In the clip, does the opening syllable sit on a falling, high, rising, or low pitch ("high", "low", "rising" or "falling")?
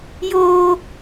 high